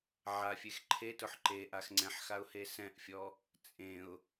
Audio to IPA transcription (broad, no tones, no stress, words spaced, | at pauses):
ʕafʲex ǃʰetʊħ ǃeʔax ŋ͡ǀɛ̃ħxaʊ̯ hesɛ̃ʔfʲɔ | t͡sʼẽʊ̯